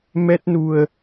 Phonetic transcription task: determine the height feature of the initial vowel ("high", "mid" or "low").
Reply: mid